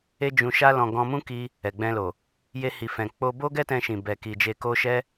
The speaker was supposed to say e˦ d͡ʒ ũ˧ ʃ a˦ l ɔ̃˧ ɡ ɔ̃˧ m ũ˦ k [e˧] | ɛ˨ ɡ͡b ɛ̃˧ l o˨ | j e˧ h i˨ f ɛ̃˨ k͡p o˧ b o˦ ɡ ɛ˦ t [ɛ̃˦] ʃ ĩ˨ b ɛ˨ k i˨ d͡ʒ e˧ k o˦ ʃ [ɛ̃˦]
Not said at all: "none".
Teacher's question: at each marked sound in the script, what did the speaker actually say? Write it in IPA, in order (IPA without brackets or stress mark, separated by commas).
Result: i˧, ɛ̃˧, ɛ˦